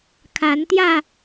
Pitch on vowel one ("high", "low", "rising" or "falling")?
rising